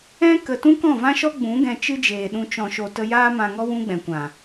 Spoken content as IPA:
ɛ̃˦ k ə˧ t ũ˦ k ɔ̃˦˨ v ã˦ ʃ ɔ˦ ɡ͡b ũ˨˦ ɡ ɛ̃˧ t͡ʃ ɨ˦ d͡ʒ eː˨ ɗ ũ˧ t͡ʃ ɔ̃˨ ʃ o˨ t ə˧ j aː˦ m ã˧ ŋ ɔ˦ w ũ˦ ɡ͡b ɛ̃˨ kʷ ã˨

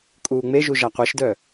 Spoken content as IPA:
kʼ uː ŋ͡m e ʒ u ʒ a qʷ ɛ ʃ d œ

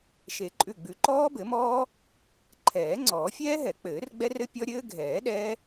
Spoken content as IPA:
ʃ e˨˩˦ ǃʼ ʉ˧˩ ɡ͡b ʉ˨˩˦ ǃ ɔː˦˥ b ɘ˨˩˦ m ɔː˦˥ | ǃʰ ɛː˨˩˦ ŋ͡ǀ ɔː˨˩˦ fʲ ɛː˦˥ ɦ ɛ˨˩˦ k͡p ɘː˨˩˦ r ɡ͡b ɛ˦˥ r ɘ˦˥ pʲ ɔ˦˥ ɾʲ ɘː˦˥ ɡʱ ɛː˨˩˦ ɗ ɛː˦˥

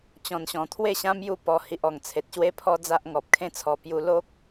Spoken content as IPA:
t͡ɕ ɔ̃˨˩ n ɕ ɔ̃˨˩ t̪ʰ w e˥˧ ɕ ã˦ m j u˥˧ p ɔ˧ h i˨ ʔ ɔ˨˩ ŋ t͡sʰ e˨ t̚ ɕ w e˦ pʰ ɔ˦ d͡z a˦ ʔ ŋ ɔ˨ p̚ kʰ ẽ˦ t͡sʰ ɔ˧ p j u˧ l o˦ k̚

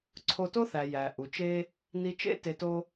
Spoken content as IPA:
ǀʰ o˧ t o˥ θ æ˩ j æ˩ ʔ u˩ t͡ʃ e˥ | n i˧ t͡ʃ ḛ˥ t e˧ t o˥

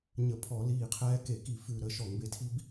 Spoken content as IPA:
ɲ ə˧˩˧ pʰ ɔ˧˩˧ l iː˧˩ qʰ ɛː˦ k e˧˩˧ k i˧˩ f ʉ˧˩ ɾ əː˧˩ ʃ ɔ˧˩˧ ŋ b e˧˩ tʰ i˦ b

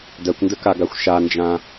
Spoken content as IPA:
d ɜ kʷ n d ə k a ɡ a xʷ ʃ a n d͡ʒ ã

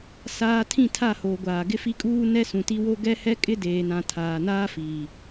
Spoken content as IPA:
s aː˨ tʰ ĩ˦˨ tʰ a˦˨ h oː˨ ɡʷ aː˨ ɡ ɪ˦ f i˦ kʼ uː˦ n ɛ˦ s ũ˨ t i˦ w o˦ ɡ ɛ˦ h ɛ˦ kʼ ɪ˦ d eː˨ n ã˨ tʰ aː˨ n aː˦ f iː˨

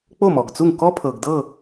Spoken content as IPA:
k͡p o˥˩ m ɔ˩ ɡ t͡s u˥˩ ŋ k ɔ˥ pʰ ɤ˩ ɡ d ɤ˥˩

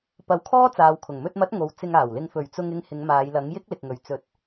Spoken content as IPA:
p ɐ˨˥ w kʰ ɔː˥ t͡s aː˨ w kʰ ʊ˨˩ ŋ m ɵ˧ t̚ m ɐ˨˥ t̚ ŋ o˨ w t͡s ɪ˧ ŋ aː˨˩ w l ɪ˧ ŋ f ɵ˨˩ ɥ t͡s ʊ˧ ŋ ɪ˧ ŋ h ɪ˨˧ ŋ m aː˨˧ j l ɐ˨˥ ŋ j ɪ˥ k̚ l ɪ˨ k̚ ŋ ɵ˨ ɥ t͡s ɵ˧ t̚

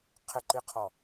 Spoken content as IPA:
qʰ ɪ ǃ i qʰ ɔ

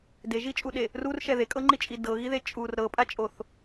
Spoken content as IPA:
d e ʒ i t͡ʃʼ u ɗ e | r u r ʃ ɛ ð e kʼ ɤ ŋ͡ǃ i t͡ʃʼ i d ɤ ɣ i ð e t͡ʃʼ u r ɾ ɤ pʼ a t͡ʃʼ o θ

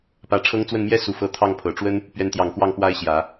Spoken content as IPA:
p ä˧˥ ʈ͡ʂʰ ɤ˥ ŋ t͡s w ə˥˩ n m j ɛ˥ s u˨˩ f ɤ˧˥ t̪ʰ ɑ˥˩ ŋ pʰ ɤ˨˩ ʈ͡ʂ w ə˥ n | p ɥ ɛ˧˥ n t̪ j ɑ˨˩ ŋ k w ɑ˥˩ ŋ p w a˥ ɪ̯ ɕ j ä˨˩˦

